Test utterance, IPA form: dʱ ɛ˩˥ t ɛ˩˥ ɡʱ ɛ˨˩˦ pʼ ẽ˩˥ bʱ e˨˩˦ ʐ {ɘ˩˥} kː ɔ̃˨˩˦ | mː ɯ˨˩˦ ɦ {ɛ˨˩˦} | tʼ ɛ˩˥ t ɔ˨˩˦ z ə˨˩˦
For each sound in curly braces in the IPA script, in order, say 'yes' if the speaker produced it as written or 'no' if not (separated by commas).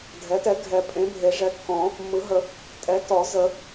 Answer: no, no